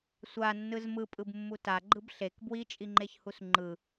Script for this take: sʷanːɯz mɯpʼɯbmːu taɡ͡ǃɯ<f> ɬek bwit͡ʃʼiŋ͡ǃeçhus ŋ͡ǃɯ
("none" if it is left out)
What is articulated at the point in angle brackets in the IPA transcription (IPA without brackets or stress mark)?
b